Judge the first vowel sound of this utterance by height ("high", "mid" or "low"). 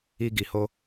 high